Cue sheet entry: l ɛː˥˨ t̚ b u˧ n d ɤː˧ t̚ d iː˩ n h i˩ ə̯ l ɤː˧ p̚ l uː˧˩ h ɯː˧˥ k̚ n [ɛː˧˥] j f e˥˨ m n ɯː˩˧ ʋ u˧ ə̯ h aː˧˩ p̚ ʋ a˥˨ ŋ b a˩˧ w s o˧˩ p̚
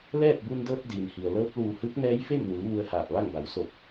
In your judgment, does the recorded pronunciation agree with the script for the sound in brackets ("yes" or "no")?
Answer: yes